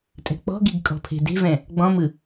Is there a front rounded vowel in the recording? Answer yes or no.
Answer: no